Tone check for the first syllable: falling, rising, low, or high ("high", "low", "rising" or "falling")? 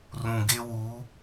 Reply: low